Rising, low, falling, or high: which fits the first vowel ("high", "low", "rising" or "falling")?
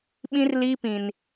high